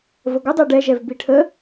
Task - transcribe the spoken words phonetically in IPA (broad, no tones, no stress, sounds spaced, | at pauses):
v ə ɡʷ ə dˤ e ɖ ɛ ʒ ɛ v b i ʈʰ ə